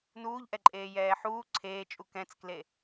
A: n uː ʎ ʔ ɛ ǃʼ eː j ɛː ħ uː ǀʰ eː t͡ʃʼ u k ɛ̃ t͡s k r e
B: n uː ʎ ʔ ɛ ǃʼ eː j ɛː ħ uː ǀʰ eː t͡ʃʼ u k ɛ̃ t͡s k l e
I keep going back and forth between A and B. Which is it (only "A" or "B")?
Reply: B